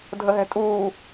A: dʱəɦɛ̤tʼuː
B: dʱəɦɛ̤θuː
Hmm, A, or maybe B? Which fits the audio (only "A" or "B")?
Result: A